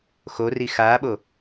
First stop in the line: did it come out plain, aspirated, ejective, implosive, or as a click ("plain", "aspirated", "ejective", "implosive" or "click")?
implosive